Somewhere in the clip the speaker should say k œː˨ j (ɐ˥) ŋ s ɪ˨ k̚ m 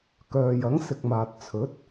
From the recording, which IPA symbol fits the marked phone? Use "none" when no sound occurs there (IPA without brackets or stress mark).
ɐ˨˥